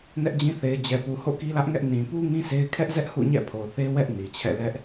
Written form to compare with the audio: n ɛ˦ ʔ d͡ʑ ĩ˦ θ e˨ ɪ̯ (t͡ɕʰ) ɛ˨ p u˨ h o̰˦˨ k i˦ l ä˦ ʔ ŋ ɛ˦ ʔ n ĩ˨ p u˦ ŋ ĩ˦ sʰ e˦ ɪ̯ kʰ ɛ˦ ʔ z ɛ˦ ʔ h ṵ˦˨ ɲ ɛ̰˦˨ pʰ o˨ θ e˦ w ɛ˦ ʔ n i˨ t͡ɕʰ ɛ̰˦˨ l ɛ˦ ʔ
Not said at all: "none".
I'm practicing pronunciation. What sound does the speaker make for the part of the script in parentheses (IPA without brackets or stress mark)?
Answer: d͡ʑ